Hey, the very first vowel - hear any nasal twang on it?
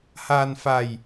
no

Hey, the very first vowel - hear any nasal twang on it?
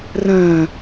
yes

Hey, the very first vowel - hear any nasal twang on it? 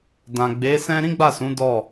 yes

